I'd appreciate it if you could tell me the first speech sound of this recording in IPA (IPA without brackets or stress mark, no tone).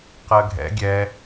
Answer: q